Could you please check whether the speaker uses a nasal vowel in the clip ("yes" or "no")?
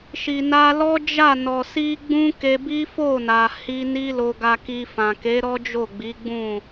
yes